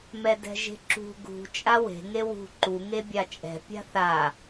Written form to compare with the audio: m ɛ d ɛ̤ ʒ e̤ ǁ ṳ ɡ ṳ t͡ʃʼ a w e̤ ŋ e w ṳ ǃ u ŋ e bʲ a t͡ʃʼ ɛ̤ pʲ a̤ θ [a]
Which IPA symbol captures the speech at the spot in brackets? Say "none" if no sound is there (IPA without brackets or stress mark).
a